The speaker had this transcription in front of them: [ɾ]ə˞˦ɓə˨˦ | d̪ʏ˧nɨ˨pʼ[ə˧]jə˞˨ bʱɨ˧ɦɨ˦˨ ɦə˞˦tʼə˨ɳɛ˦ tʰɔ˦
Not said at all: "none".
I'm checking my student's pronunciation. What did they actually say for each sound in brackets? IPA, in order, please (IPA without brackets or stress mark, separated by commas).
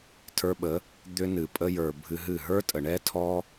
tʰ, ə˧